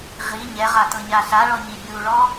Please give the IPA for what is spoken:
ʁ i ɲ ɛ ʁ a t ɤ ɲ a ɬ a ɭ ɔ ɲ i bʲ u ɭ ɔ

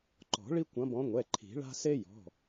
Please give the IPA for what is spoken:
ǃ ɔ̤˨˩˦ ɭ i˦ kʷ ɐ̃˨˦ b ɔ̃˨˦ ŋʷ ɛ˩˧˩ ǃʰ i̤˨˩˦ ɭ a̤˦ s e˦ j ɔ̤˩˧˩

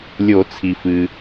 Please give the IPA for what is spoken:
lʲ o˨˩˦ t͡sʰ i˩ f ɨ˩

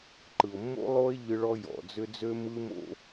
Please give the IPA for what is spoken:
ǃ ɯ˨ o̯ mː o̰˦ lˠ o˦ e̯ ʎ ɯ˦ ɭ ɔ˦ j ɔ̰˨ d͡z ʏ˦ d͡z ø˦ m ɯ˦ m o̰˦

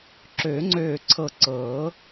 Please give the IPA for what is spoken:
ǁ øː˨˩˦ ŋ͡ǀ øː˧˩ ǀʰ ɤ˧˩ ǀ ɤː˨˩˦

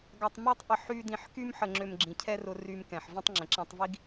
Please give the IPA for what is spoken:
ɡ a˧ tˤ m ø˥ tˤ ʔ ə˧ ħ y˥ d ĩ˧ ħ k y˥ m ħ ə˧ ŋ͡ǁ ø˧ m ɡ͡ǁ ĩ˩ cʰ ɛ˥ r ʊ˧ r y˧ m k ɛ̃˩ ħ v ə̃˥ tˤ ŋ͡ǁ ə̃˩ ǁ ã˧ tˤ v i˥ ɡ

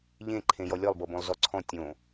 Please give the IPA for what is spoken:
ʎ ẽ ǃʰ ẽ j ɔ lʲ ɔ lˠ b ɤ b õ lˠ z ɔ ǀʰ ɔ̃ tʲ õ

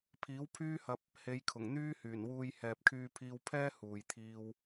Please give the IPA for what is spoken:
pʰ iː˨˥ w pʰ yː˥ h ɐ˧ p̚ | h e˨˧ j kʰ ʊ˨˩ ŋ n̪ yː˥ h yː˨˩ n w uː˧ j h ɛː˨ p̚ kʰ yː˧ pʰ iː˧ w pʰ ɛː˥ h uː˨ j t̪ʰ iː˧ w

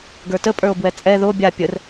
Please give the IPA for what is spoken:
ɡ ə˞ t ə pʼ ə˞ o̯ b w ɛ t͡sʼ ɛ ð o bʲ a pʲ ə r

